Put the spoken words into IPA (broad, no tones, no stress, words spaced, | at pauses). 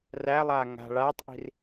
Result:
rælˠaː ŋa̤ ɭaːtˤʔi̤r